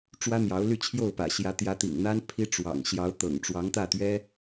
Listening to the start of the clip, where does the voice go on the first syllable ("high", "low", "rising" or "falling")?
high